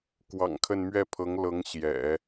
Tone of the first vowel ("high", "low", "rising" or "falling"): low